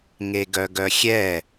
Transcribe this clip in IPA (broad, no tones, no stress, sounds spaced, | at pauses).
ŋ e ɡ œ ɡ œ xʲ ɛ